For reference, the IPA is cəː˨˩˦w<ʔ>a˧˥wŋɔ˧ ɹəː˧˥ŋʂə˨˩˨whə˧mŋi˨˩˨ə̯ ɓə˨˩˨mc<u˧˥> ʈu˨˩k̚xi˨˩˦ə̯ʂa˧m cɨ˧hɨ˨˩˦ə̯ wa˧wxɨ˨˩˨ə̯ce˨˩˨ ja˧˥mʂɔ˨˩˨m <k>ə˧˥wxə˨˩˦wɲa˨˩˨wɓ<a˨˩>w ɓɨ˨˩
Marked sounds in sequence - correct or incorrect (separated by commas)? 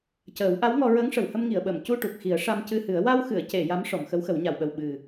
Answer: correct, incorrect, incorrect, incorrect